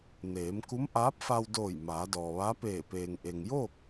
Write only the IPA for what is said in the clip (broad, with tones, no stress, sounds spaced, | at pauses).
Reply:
n eː˩˧ m k u˧˥ m ʔ aː˧˥ p̚ f a˧ w d oː˧˩ j m aː˩˧ d ɔː˩ ʋ a˧˥ p eː˧˩ p eː˩ ŋ ʔ e˩ ŋ j oː˥˨ k̚